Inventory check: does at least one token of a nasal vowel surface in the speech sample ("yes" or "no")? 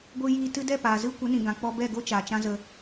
yes